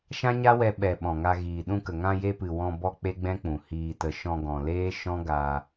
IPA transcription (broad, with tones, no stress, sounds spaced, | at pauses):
ʃ ã˦ ɲ a˦ w ɛ˧ ɓ ɛ˨ ɓ ɔ̃˨ ŋ a˧ ɣ iː˨ ɗ ũ˧ k ə˨ ŋ ã˧ j e˧ p ɨ˨ w ɔ̃˧ b ɔ˦ k͡p e˦ ɡ͡b ɛ̃˦ k͡p ũ˨ h iː˨ t ə˨ ʃ ɔ̃˧ ɡ ɔ̃˨ l eː˦ ʃ ɔ̃˦ ɡ aː˧